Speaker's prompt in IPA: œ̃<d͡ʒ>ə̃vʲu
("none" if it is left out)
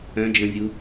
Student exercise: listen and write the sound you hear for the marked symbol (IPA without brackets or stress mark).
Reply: d͡ʒ